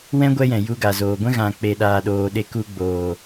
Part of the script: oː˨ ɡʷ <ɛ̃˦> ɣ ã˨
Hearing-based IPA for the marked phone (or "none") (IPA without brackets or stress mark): ɛ̃˦